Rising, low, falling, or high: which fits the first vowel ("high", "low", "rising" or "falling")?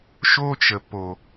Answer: high